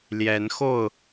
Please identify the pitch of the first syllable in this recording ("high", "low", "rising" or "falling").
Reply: rising